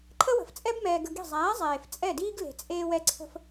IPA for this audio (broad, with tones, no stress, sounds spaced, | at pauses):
ǃʰ ə˦ w ə̤˨ f t͡sʼ ɛ˦ b m ɛː˧ ɡ ə˧ ɡ i̤˦˨ zˤ æː˨˦ zˤ eː˨ f t͡sʼ ɛ˦˨ d iː˦ ɡ l e̤˨ t͡sʼ eː˧ w ɛ˧ ǀʰ ə̤˧ f